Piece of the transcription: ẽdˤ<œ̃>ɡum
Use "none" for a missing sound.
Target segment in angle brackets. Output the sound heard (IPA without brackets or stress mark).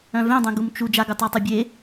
œ̃